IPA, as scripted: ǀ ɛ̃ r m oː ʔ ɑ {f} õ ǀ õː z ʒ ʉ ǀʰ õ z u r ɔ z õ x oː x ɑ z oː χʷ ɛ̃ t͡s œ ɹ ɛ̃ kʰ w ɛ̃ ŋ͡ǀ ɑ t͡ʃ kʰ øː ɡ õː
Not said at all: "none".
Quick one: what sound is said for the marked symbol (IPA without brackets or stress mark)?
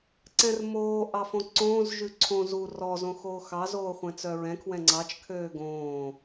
f